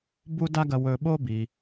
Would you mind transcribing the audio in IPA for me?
b u˥ d a˥ ɡ ɐ˧ w ɵ˧ ɓ o˥ b i˩

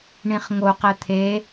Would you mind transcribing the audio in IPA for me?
ɳ ĩ χ ŋ o q ɛ t̪ʰ e

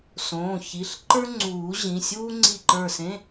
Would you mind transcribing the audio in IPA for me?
s õː˩˧˩ ç i˩˧˩ ɬ ǃ ə˞˥ ŋ͡ǀ uː˨˩˦ ʑ ĩ˩˧˩ sʲ uː˥ ŋ͡ǀ i˧˩ ǃ ə˞˧˩ s ẽ˧˥˧

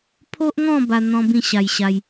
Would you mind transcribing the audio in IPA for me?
pʰ o˦ ʔ ŋ ɔ̃˥˧ b a˦ n̪ ɔ̃˦ b ĩ˥˧ ɕ a˧ j ɕ a˧ j

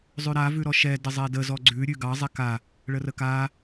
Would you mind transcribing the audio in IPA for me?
zˤ ʉ ɾ a v ʉ ɾ ɔ ʃ ɛ d ə zˤ ɛ d ə z ɔ ɡ͡ǀ ʉ ɾʲ ʉ ɡ ɑ zˤ ɛ k a | ɭ ə r ə k a

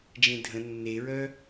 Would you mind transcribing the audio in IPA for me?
d͡ʒ ẽ dʱ ə̃ nː e ɹ œ

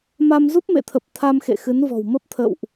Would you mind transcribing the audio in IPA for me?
m a˧ m z u˦˥ p̚ m ḛ˧˨ t̪ʰ ə˨˩ p̚ t̪ʰ a˧ m x ḛ˧˨ x ɨ˨˦ n v ɔ̤˨˩ w m ə˦˥ p̚ t̪ʰ ə̰˧˨ w ʔ

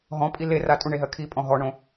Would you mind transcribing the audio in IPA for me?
ɦ ɔ̃ pʼ i l e r a tʼ u ɳ e ɦ ɜ kʰ i pʼ ɔ̃ ɦ ɔ ɳ õ

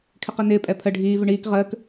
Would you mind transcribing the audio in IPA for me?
kʰ ɪ q i n ɪː pʼ ɛ pʰ ə ɖʱ iː v ɪ ɳ iː k ʁ əː k

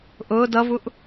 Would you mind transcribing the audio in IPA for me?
ʔ ʊː d ʌ v u ʔ

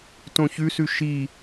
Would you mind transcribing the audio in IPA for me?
t õ ç ʉ s ʉ ʃ i

